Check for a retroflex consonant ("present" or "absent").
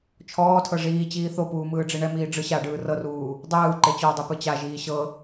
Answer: present